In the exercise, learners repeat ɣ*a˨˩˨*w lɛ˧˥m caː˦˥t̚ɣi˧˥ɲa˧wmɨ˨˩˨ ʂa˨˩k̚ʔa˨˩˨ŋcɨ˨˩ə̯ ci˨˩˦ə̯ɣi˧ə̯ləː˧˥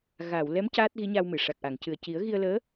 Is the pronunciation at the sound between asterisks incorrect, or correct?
correct